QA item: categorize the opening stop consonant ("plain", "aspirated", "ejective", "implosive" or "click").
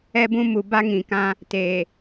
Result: plain